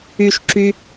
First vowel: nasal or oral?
oral